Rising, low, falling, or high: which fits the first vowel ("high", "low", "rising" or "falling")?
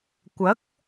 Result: rising